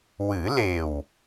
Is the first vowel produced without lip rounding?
yes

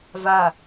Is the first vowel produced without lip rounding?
yes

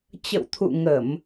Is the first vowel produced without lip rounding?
yes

